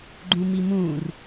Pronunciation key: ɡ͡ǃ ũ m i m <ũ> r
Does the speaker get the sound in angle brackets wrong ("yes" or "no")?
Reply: no